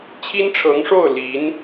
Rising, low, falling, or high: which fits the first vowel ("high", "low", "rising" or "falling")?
high